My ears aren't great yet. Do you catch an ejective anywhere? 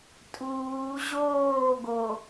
yes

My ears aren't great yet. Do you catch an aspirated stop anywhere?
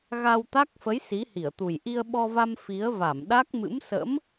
no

